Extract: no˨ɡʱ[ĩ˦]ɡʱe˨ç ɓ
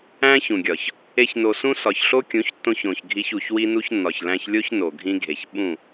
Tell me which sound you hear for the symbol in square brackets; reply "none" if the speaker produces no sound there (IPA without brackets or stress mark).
ĩ˦